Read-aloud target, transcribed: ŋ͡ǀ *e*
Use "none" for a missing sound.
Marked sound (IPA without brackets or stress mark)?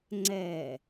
ɛ